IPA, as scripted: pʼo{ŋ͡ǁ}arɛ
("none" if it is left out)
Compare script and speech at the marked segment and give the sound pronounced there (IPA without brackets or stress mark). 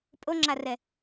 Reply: ŋ͡ǁ